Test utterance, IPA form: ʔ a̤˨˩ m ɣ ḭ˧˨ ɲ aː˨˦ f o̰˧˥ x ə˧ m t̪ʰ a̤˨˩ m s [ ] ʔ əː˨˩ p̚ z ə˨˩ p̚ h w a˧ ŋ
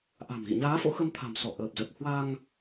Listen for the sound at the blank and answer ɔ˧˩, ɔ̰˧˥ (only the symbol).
ɔ˧˩